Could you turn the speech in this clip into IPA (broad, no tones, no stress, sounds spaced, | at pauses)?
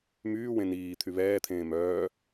m yː w ẽ n iː t̪ʰ y β ɛː t̪ʰ ẽː m œː